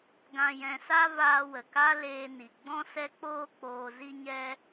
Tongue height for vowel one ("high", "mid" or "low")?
low